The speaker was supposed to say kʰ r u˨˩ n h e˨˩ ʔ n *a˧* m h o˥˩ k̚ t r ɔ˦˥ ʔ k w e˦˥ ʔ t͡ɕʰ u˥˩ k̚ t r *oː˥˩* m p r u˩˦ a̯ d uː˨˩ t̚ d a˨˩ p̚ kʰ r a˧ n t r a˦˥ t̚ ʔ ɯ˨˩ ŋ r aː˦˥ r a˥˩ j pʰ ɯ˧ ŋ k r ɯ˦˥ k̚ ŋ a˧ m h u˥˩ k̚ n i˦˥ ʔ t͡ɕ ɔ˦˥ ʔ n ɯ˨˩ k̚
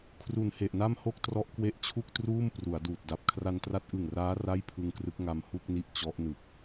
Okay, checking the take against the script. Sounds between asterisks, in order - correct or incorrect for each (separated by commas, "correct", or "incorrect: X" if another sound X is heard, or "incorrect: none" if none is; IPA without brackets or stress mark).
incorrect: a˥˩, incorrect: uː˥˩